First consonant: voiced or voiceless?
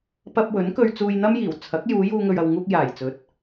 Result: voiceless